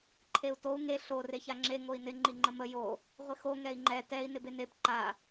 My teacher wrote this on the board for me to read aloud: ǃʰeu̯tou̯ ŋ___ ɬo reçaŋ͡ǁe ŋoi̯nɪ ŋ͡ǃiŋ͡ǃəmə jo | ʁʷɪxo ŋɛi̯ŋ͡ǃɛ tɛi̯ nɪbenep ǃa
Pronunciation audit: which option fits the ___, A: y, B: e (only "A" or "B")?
B